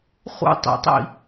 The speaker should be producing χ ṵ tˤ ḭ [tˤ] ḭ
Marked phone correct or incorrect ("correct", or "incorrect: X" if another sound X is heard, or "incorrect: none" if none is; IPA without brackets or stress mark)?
correct